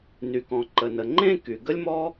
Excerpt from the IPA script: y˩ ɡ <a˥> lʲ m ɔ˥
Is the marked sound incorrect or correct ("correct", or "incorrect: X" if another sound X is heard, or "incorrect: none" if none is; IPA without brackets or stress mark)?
incorrect: ə˥